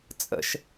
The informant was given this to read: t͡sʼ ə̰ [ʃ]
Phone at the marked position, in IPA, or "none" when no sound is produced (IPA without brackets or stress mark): ʃ